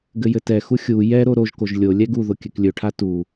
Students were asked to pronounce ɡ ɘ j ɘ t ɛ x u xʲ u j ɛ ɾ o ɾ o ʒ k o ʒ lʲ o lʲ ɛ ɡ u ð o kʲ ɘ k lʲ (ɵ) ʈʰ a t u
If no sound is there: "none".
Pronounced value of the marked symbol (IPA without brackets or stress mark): ɵ